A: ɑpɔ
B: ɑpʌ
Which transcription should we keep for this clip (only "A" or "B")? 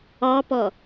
A